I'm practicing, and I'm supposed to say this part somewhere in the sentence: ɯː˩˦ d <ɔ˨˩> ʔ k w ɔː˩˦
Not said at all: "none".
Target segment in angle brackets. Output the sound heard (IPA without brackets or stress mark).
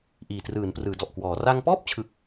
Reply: ɔ˨˩